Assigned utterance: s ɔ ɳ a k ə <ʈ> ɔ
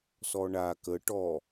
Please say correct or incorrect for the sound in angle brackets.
correct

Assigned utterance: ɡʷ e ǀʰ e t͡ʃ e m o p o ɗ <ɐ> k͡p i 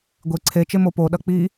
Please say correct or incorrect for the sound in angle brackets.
correct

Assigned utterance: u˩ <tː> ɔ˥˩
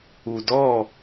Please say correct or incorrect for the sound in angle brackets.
incorrect: d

